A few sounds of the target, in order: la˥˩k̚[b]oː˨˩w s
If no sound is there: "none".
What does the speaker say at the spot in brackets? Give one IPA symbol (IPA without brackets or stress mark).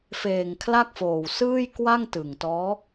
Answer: f